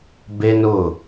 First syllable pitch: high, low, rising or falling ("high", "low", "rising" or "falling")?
high